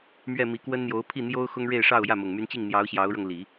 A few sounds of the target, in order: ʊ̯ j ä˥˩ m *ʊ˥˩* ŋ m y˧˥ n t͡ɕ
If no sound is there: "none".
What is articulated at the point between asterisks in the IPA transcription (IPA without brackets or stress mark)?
ʊ˨˩